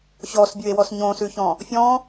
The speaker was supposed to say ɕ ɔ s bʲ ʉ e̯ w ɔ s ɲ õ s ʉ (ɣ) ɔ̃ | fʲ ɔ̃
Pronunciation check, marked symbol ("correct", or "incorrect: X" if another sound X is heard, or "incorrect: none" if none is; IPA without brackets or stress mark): incorrect: ç